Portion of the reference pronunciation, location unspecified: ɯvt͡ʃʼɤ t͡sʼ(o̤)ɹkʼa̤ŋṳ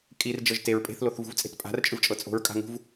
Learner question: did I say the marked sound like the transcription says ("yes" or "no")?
yes